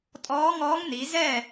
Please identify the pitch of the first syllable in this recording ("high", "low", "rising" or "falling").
rising